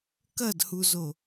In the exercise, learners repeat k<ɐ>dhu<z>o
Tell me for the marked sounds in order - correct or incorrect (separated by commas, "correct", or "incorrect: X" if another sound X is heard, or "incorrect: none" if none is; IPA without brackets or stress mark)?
correct, correct